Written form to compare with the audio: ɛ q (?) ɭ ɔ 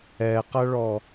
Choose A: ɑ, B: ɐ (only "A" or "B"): B